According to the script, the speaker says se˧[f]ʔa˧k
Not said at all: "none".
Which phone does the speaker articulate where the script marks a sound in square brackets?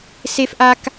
f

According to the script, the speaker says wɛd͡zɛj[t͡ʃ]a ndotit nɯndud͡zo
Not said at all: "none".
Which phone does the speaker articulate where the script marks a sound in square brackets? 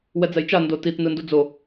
t͡ʃ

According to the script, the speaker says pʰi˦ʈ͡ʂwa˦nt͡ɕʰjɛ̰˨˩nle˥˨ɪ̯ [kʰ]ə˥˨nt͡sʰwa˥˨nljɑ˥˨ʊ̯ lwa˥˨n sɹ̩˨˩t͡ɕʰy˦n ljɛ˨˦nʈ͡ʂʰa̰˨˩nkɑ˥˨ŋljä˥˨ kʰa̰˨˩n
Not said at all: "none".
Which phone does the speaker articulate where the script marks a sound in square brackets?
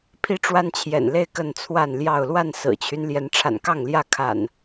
k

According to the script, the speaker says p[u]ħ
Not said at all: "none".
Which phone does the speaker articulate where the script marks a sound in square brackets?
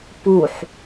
u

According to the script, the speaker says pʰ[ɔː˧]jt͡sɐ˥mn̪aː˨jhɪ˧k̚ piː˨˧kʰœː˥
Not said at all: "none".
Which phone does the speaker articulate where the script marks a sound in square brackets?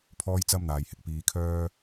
ɔː˥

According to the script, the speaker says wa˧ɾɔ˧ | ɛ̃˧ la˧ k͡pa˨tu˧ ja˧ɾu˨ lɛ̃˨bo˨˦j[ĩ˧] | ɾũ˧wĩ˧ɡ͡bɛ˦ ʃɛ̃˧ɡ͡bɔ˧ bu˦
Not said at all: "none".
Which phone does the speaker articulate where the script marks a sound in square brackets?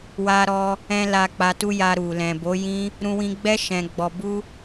ĩ˦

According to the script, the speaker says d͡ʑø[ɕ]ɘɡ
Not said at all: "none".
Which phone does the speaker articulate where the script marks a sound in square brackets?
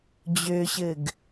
ɕ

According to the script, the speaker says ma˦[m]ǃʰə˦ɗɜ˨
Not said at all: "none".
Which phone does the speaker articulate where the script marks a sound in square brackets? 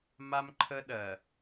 m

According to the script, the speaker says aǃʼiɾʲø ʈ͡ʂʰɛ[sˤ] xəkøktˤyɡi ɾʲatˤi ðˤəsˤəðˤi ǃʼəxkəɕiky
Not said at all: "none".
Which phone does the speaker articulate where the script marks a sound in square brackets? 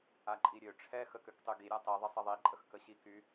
none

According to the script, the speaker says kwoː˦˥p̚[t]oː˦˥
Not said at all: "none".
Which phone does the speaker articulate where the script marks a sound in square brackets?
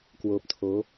tʰ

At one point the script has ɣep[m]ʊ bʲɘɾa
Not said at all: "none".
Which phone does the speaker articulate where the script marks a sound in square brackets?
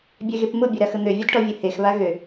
m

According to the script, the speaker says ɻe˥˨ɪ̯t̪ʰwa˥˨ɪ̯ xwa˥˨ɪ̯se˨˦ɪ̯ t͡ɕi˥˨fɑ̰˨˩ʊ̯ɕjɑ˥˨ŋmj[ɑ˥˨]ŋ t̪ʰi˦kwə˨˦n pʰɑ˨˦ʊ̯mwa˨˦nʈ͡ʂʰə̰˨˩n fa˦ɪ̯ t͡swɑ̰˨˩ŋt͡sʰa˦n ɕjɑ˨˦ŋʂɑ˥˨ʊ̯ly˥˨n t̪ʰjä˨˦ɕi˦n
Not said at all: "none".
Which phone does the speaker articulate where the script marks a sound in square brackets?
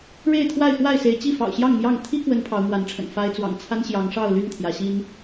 ɑ˥˨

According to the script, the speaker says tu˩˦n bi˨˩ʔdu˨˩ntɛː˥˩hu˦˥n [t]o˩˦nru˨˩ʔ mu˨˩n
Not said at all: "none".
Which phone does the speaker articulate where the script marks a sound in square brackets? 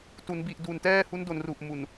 d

